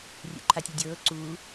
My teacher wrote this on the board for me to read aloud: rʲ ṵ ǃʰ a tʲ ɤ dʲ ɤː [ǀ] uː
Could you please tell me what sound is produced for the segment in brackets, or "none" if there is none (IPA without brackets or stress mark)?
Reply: ǀ